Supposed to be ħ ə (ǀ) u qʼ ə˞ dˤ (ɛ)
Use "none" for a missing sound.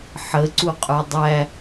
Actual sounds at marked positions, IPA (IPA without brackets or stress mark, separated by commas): ǀ, æ